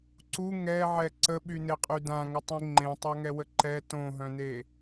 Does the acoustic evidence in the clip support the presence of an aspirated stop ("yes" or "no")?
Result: no